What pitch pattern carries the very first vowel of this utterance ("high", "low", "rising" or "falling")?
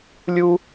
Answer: high